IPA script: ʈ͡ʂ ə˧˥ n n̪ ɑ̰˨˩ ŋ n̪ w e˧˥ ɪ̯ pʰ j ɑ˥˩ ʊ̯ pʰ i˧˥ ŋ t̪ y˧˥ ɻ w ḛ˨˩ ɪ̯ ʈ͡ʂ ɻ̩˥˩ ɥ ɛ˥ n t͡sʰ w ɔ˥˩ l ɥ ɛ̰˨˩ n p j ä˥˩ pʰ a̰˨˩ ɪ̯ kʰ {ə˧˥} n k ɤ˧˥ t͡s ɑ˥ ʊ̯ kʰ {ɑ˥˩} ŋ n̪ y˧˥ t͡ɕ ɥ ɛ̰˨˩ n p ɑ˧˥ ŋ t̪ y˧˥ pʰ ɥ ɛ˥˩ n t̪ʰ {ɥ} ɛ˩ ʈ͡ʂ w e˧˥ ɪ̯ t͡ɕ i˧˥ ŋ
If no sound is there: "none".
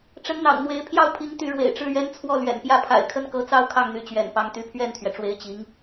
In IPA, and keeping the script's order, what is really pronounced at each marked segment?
ə˥˩, ɑ˥˩, ɥ

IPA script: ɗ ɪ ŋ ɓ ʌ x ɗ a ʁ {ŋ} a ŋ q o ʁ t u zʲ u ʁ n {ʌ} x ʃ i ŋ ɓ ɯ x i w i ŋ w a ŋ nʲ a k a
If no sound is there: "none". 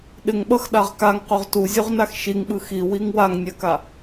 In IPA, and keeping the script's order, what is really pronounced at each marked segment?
k, a

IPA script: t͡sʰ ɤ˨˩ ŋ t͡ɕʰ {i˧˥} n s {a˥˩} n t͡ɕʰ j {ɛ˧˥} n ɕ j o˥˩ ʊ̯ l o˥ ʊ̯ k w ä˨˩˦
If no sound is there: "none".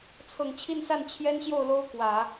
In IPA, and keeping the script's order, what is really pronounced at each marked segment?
i˥˧, a˥˩, ɛ˥

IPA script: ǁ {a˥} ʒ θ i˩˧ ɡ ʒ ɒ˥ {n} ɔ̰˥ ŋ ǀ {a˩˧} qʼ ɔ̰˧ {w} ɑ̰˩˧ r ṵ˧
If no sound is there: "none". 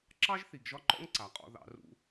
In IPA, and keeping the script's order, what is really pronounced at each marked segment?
ɑ˥, ǃ, a˩˧, ð

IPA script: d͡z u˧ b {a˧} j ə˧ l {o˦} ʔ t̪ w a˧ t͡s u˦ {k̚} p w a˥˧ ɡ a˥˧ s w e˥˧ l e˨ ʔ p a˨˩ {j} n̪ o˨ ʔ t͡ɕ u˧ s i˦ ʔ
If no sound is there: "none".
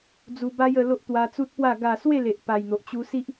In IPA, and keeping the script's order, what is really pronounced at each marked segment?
a˦, o˦, t̚, j

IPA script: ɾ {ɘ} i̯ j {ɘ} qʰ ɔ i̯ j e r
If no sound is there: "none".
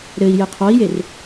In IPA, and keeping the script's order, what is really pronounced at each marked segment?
ɘ, ɘ

